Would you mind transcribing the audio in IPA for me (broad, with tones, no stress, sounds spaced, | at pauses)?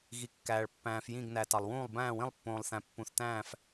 ɣ i˨ kː æː˨ ɭ pː æ̃ː˨ f j ĩ˦˨ ɡ n æ˨ t ɑ˨ lˠ w ũː˦˨ lˠ b æ̃ː˦˨ w ĩ˦˨ lˠ pː õː˨ lˠ θ æ̃˨ pː ũ˨ θ t æ̃ː˦˨ f